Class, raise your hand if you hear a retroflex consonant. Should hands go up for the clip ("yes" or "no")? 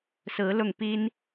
no